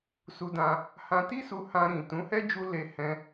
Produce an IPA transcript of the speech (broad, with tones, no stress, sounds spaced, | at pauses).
s u˧ d ã˧ | h ã˧ t i˦ s u˧ h ã˧ ɾ ĩ˨ t ũ˨˦ h ɛ˦ d͡ʒ u˧ l e˧ h ɛ̃˧